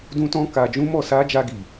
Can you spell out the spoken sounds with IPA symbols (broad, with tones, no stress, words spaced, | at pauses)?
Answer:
dũ˦tɔ̃˦ ka˧d͡ʒũ˦mɔ˦˨ sa˧ d͡ʒa˧ɡi˨